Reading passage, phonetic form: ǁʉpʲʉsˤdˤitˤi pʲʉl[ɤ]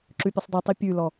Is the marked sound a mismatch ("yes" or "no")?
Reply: yes